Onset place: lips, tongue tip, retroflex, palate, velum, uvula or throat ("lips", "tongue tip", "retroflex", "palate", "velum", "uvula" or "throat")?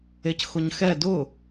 palate